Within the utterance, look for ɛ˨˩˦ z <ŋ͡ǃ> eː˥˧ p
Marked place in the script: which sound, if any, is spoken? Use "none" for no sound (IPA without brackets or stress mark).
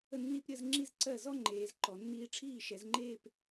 ŋ͡ǃ